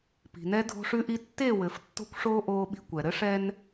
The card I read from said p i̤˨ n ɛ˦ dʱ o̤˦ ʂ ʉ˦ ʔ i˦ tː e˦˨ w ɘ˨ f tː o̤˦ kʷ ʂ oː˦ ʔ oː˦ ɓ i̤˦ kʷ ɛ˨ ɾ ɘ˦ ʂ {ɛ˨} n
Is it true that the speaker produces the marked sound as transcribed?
no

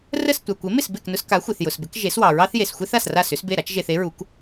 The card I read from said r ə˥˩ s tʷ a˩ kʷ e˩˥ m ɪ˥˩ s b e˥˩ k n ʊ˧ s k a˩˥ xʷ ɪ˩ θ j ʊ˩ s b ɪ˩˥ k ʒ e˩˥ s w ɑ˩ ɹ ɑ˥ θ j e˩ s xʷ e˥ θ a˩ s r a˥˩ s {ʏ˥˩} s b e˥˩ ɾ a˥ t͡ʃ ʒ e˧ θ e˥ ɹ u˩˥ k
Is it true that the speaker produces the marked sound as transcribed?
no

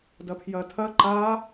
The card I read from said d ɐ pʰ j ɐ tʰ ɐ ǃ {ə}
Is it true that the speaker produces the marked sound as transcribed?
no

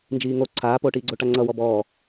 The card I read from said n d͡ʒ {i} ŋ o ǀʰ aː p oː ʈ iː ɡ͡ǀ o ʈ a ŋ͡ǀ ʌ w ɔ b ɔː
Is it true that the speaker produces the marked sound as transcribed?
no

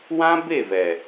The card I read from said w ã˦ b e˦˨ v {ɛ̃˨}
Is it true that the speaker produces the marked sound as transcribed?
no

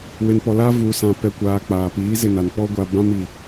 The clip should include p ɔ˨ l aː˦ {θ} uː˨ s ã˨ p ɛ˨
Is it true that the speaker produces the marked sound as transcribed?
no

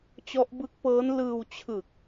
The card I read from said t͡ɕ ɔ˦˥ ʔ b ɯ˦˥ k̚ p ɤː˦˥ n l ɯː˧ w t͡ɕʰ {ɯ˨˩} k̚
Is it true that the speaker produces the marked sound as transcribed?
yes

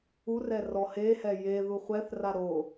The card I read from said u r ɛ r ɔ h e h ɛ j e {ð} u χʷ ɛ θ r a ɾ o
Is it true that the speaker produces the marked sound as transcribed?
yes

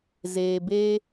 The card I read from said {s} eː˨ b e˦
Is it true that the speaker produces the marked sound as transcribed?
no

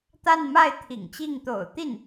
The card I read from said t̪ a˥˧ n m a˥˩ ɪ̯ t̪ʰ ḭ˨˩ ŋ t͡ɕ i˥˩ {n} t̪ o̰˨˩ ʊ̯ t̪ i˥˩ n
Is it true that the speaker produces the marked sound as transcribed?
no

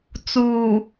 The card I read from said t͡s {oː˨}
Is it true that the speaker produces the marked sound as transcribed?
no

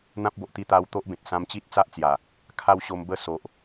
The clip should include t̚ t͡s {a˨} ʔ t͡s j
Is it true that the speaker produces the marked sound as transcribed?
no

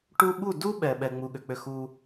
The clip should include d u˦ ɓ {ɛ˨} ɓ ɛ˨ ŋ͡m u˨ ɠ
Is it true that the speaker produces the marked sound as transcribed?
yes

